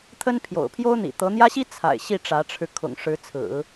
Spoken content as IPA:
t̪ʰ ə˥ n pʰ j o̰˨˩ ʊ̯ pʰ j o˥ ʊ̯ n̪ ḭ˨˩ t̪ ɤ˧˥ n̪ j ä˥ ɕ i˥ t͡sʰ a̰˨˩ ɪ̯ ɕ i˥˩ ʈ͡ʂ ä˧˥ ʈ͡ʂʰ ɻ̩˧ kʰ ʊ̰˨˩ ŋ ʂ ɻ̩˧˥ t͡sʰ ɹ̩˨˩˦

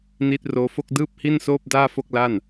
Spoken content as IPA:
n iː˦˥ t̚ r oː˦˥ f o˥˩ k̚ d ɯː˥˩ p̚ h i˥˩ n s oː˥˩ p̚ d aː˥˩ f o˥˩ k̚ l a˥˩ n

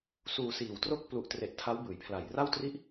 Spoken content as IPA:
s uː˧ s iː˨˩ w t r o˥˩ k̚ p l u˨˩ ʔ t r e˨˩ ʔ tʰ a˦˥ w b ɯː˩˦ j pʰ l a˨˩ j r a˥˩ w t r i˥˩ ʔ

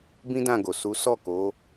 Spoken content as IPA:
b ĩ˦ d ã˦˨ ɡ o˨ s u˨˦ s ɔ˦˨ k o˨˦

